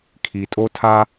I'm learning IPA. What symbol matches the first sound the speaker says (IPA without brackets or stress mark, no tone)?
kʰ